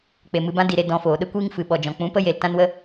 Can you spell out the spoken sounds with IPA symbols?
k͡pe˨mɨ˧bã˦ di˨ɾe˧ dɔ̃˧foː˨ ɗə˦kʷiː˦ŋfɨ˨ ɓɔ˧d͡ʒɔ̃˧ k͡pũ˨˦pə˦je˨l tã˦nwə˦

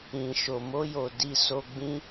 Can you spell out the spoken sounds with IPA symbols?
ĩ˨ʃo˨mo˧jo˨ di˨ so˧ɡ͡bĩ˦

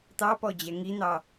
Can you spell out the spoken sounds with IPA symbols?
t̪ɑpɔ d͡ʑɛŋin̪ɑ

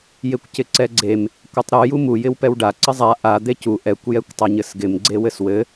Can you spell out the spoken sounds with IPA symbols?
jekʷcɪǀɛɡ͡ǀem | kʷɘtˤɾu jumu jɪwpɛwɖa ǀɘzˤa ʔa d̪ecu ʔɛkʷ jɛkʷtˤɛɲɘsɡɪm ɡ͡ǀewɘswɘ

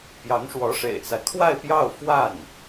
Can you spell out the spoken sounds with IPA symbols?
pjɑ˧˥ŋʂwɔ˧˥ʂḛ˨˩ɪ̯t͡sa˦ɪ̯ kʰwa˥˧ɪ̯pjɑ˥˧ʊ̯ fwa˥˩n

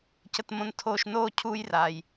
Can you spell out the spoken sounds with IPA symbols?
cə˨t mõ˨n tʰoː˨ʃnoː˦˨ cʰu˦jra˨j

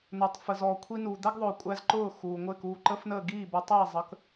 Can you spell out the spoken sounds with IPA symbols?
nʊː˩tˤfə˩zɔː˩ kʷʰi˧nuː˩ d̪æ˥ɡðˤʊː˩kʷʼæ˧z ǃʊː˥˩xuː˩ŋʷɪː˥˩kuː˥˩ ǃə˥fnəː˥˩ ɡiː˥˩bə˧ tˤiː˥˩ zˤə˩˥k

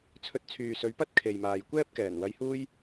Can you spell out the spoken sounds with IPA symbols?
t͡sʰɵ˧t̚t͡sʰyː˨sɵ˨˧ɥpɐ˥t̚ kʰe˨jmaː˨jkʷɛː˥p̚ kɛː˨˩nwɐ˧jhuː˥j

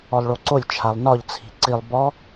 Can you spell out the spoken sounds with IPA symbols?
ɔlˠɭoǀolʲ t͡ʃʰalˠnɒʎ t͡sʰi̤ǀilˠ bɔ

